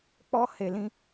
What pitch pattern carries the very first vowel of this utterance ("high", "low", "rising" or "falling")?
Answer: high